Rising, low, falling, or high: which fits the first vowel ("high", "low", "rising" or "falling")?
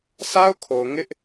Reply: high